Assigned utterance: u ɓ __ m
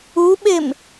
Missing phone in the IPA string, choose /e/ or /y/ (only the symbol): e